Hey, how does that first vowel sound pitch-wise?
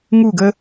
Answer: falling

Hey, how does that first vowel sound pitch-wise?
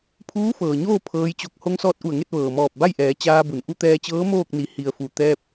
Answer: rising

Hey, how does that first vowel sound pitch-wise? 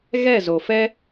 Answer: falling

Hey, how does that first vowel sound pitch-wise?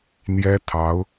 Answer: high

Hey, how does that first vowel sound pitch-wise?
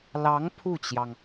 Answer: rising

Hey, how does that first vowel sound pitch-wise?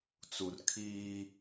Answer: low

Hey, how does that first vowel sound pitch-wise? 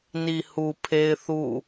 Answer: low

